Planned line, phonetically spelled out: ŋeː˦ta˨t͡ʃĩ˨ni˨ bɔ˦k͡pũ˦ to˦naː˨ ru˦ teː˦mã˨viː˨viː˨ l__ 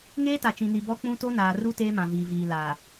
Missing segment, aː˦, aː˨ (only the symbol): aː˨